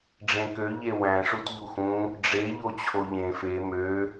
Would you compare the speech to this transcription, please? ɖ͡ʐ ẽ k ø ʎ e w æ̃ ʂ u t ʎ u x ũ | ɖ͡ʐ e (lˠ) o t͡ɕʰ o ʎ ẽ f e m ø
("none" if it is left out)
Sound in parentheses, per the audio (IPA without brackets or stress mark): ʎ